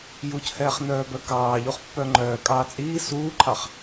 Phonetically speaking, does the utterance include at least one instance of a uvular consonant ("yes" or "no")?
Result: yes